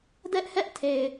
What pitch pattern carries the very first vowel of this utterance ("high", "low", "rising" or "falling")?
high